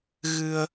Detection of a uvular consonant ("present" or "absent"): absent